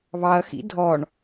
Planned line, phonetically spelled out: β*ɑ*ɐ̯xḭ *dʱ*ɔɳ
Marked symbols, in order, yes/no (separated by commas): yes, yes